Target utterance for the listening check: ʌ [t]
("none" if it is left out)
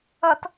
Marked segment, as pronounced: t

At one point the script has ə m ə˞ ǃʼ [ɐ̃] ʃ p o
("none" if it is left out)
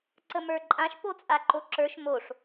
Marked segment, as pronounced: ã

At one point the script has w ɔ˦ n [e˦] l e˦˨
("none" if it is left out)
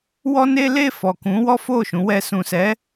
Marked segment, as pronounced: e˦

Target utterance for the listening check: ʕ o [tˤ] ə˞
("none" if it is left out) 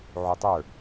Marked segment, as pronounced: tˤ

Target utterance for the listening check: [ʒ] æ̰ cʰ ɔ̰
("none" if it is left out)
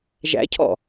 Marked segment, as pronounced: ʒ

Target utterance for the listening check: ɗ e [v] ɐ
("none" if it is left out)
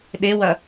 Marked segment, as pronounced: w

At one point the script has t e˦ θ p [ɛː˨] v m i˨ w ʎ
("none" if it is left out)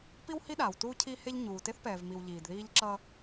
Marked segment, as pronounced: ɛː˨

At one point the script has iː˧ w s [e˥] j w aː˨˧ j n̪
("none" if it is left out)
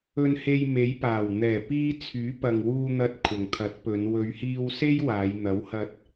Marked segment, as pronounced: e˥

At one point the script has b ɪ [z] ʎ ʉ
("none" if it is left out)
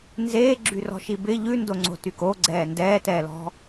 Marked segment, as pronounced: none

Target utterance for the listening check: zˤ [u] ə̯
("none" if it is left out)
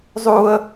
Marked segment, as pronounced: u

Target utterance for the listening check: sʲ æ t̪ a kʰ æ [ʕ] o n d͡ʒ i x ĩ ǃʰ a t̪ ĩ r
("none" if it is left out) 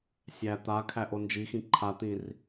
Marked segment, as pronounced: ʔ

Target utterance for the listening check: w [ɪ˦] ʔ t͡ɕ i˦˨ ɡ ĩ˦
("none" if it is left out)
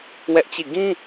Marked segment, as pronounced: ɛ˦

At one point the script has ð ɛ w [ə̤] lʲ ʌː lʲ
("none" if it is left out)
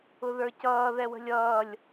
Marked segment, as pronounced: ə̤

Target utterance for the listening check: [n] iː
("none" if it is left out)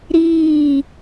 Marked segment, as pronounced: ɾ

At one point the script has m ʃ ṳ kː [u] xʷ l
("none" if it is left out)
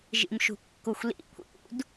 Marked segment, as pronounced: u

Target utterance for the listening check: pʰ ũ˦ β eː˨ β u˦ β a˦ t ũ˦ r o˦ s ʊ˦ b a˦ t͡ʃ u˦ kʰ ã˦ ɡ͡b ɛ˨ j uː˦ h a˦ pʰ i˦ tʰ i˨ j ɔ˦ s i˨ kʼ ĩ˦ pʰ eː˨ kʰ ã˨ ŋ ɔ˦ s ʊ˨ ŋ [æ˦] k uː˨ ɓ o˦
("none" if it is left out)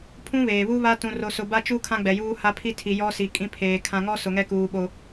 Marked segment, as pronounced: ɛ˦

